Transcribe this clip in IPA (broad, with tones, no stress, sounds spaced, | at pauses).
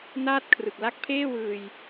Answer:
n aː˥˩ t̚ kʰ r ɯ˨˩ k̚ l a˦˥ k̚ pʰ eː˥˩ w ɯː˧ j